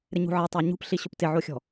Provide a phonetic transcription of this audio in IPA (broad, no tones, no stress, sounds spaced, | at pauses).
ɾ ɪ ɲ ṳ ʕ e tˤ a ɲ ṳ p ɬ i ɕ ʊ p t ɪ ʕ o xʲ ɔ̤